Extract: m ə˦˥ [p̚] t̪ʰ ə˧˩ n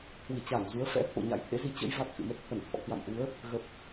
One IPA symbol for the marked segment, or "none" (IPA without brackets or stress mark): t̚